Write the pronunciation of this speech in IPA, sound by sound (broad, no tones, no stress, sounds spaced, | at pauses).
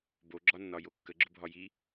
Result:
b o ɡ͡ǁ ɒ nː ɒ j o kː ə ɡ͡ǁ ʊ bʱ ɒ j i